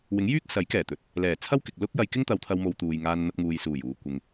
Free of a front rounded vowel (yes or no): no